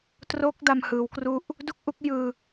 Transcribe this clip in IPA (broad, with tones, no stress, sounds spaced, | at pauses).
t r o˦˥ k̚ d a˧ m h ɯː˩˦ w k r u˥˩ ʔ | d u˥˩ k̚ ʔ u˦˥ k̚ j ɯː˧